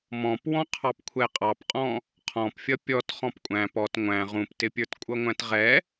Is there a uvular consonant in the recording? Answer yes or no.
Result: yes